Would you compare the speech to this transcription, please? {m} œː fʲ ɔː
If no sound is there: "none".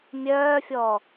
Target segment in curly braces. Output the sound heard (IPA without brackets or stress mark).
mʲ